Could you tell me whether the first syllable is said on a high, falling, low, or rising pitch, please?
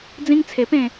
high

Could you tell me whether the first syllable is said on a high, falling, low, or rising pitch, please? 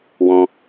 high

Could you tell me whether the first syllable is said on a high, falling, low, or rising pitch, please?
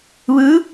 rising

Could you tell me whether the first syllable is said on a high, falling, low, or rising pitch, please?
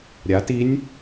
rising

